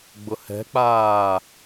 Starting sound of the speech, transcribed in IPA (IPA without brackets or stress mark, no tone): ɡ͡b